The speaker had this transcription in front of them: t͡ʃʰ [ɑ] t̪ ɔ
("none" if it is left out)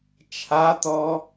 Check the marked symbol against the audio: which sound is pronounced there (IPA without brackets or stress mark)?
a